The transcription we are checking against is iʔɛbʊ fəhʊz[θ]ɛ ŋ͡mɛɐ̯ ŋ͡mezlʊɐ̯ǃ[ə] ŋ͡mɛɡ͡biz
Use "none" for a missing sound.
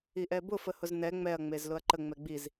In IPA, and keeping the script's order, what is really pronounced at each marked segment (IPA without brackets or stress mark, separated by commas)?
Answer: n, ə